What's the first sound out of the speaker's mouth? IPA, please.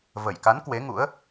v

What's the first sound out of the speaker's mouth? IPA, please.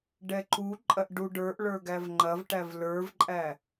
ɖ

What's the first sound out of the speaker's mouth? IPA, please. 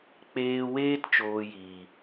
k͡p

